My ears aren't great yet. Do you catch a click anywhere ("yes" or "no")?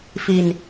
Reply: no